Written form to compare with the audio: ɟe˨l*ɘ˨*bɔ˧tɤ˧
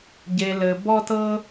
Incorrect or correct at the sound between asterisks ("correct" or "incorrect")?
correct